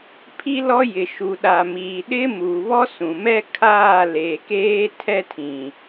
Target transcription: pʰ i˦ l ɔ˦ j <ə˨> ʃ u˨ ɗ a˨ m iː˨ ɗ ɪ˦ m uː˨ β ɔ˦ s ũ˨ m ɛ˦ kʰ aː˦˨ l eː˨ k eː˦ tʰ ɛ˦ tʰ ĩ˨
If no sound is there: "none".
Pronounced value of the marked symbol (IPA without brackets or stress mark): ɪ˨